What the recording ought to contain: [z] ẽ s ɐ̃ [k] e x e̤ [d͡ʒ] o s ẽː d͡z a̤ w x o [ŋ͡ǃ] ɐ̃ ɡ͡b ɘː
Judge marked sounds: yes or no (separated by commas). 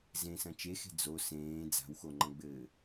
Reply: yes, no, no, yes